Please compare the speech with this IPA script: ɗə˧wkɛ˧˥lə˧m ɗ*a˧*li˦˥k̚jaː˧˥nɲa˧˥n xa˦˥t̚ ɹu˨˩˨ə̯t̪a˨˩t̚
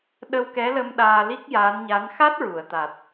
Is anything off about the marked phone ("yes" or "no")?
yes